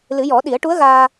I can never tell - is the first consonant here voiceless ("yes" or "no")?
no